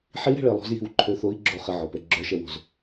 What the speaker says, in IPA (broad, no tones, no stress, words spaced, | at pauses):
ħi ɾe̤ɭelˠo̤zji̤w ǃʰøθoi̯ ɡ͡ǁoχəʕɔpɛ ɡ͡ǁœʃɛwo̤z